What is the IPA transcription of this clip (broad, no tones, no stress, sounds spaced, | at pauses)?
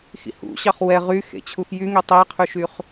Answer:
x ḭ h ṵ ɕ ɑ χ w ɛ ʁ y x ḛ t͡ɕʰ u x j y ŋ e tˤ e qʰ ʉ ʃ y χ